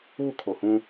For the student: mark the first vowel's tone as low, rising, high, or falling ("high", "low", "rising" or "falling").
falling